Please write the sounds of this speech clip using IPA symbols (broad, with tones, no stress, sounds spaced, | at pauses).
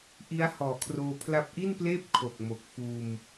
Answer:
ʔ i˦˥ a̯ h ɔː˨˩ kʰ r oː˧ pʰ l a˦˥ p̚ ʔ i˥˩ n p l eː˥˩ p̚ kʰ o˨˩ k̚ m o˨˩ k̚ f uː˧ m